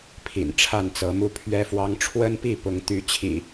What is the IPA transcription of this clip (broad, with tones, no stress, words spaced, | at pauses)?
pʰḭ˨˩nʈ͡ʂʰa˥˨nt͡sɤ˨˦mu˦ pʰɥɛ˦fwɑ˦ŋ ʈ͡ʂʰwə˦npi˥˨pʊ˨˦ŋ t̪y˦ t͡ɕʰḭ˨˩